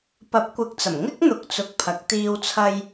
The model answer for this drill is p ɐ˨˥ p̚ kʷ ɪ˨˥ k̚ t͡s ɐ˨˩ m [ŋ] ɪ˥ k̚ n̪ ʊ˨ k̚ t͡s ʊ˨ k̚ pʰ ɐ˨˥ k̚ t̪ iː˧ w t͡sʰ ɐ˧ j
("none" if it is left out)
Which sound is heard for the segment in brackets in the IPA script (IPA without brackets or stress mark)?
ŋ